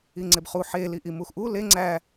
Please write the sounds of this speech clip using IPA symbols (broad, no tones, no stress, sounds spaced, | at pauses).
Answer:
i ŋ͡ǀ e b χ u ħ e l i ʔ i m u x ʔ u l e ŋ͡ǀ æ